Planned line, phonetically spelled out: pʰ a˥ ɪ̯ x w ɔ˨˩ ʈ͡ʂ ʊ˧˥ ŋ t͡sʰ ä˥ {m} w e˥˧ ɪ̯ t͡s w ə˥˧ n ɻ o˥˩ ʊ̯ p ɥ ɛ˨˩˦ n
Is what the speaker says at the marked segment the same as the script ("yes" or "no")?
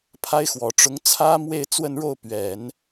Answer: yes